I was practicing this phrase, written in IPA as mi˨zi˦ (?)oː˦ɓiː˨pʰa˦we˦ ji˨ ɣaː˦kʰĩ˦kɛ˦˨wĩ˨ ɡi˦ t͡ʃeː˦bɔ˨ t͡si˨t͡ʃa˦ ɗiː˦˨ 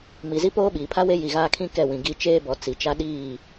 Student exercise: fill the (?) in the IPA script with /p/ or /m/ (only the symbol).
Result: p